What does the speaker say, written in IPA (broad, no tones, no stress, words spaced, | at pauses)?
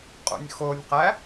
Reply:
qʼo̰nʲxonʲqæ